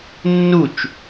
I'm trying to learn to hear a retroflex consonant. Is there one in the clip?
no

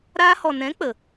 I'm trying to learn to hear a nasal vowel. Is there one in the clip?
yes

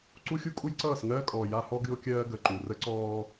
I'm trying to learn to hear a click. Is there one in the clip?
yes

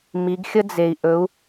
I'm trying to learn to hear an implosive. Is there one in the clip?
no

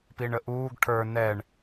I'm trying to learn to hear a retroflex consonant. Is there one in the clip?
yes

